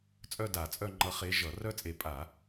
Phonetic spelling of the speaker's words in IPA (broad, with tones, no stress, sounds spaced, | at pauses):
t͡sʼ œ˥˧ d a˧˩˧ t͡sʼ œ˥˧ ŋ͡ǃ ʌ˧˥ χ e˧˥ ʒ ʌ˧˩˧ r œ˥˧ t͡sʼ e˧˩ pʼ a˧˩˧